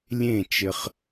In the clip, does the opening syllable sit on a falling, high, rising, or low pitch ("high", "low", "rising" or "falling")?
falling